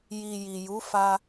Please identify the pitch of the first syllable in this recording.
low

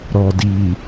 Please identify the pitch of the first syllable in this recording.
low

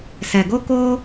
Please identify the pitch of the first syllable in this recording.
low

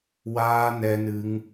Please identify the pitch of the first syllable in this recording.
high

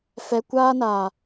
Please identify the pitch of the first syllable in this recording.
low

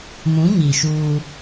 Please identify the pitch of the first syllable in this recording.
rising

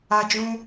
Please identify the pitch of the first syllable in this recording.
high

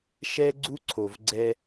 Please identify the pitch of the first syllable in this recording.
high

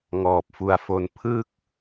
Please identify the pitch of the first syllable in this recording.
low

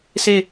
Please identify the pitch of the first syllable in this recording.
falling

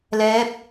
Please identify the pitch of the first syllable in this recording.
rising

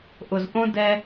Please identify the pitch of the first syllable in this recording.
low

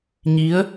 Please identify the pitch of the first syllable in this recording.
rising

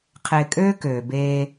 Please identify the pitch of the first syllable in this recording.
low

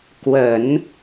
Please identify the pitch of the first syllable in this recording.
low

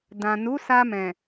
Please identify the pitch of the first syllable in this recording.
low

